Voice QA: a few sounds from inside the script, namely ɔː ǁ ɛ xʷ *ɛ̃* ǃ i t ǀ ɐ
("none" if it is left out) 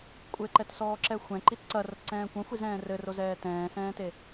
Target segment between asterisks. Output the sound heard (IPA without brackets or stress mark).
ɛ̃